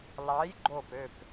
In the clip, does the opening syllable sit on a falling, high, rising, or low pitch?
rising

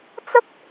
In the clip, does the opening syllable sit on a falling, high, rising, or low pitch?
high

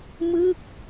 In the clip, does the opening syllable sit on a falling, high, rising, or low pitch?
falling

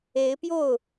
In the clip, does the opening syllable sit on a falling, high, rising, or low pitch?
rising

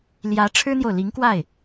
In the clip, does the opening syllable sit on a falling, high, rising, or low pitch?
rising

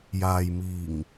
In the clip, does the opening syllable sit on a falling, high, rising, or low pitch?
low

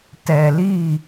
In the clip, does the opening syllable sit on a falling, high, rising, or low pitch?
low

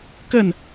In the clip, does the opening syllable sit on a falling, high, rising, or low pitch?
falling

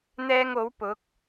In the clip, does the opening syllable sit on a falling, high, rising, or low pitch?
high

